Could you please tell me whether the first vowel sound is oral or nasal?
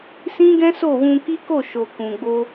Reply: nasal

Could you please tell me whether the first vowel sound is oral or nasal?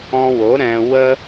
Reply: nasal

